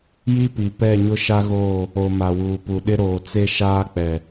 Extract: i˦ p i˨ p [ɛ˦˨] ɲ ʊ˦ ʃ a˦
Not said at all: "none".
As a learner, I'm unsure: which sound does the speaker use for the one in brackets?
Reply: ɛ˦˨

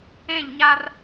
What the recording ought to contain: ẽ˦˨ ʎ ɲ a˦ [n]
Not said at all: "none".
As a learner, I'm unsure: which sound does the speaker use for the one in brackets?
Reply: r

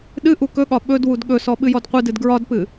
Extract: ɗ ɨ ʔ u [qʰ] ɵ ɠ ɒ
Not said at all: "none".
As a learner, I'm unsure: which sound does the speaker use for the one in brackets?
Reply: k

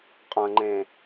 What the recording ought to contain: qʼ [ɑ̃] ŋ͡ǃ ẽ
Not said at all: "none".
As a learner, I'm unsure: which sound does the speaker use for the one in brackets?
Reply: ɐ̃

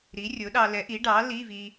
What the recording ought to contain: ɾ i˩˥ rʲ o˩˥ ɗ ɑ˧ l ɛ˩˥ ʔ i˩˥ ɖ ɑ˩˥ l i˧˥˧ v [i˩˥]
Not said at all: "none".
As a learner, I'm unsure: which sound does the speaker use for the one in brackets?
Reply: i˧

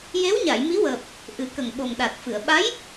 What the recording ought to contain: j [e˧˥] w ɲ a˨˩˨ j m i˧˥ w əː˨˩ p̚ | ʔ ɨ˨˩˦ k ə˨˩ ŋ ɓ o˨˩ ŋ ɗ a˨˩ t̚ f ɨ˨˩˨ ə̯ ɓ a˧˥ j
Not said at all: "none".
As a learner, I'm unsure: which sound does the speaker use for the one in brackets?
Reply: e˧˥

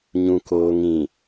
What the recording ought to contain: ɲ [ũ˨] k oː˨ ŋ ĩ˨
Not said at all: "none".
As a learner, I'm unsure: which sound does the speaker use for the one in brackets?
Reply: ũ˨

